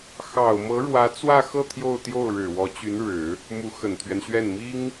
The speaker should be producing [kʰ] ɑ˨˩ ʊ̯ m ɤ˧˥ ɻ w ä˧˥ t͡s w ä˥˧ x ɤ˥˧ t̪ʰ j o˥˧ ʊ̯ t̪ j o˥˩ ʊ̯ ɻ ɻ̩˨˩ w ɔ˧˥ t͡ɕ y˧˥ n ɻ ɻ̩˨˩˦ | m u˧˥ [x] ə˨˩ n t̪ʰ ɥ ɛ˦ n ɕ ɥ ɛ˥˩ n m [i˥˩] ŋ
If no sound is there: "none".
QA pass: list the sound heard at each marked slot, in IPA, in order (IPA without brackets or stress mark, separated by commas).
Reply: x, x, i˥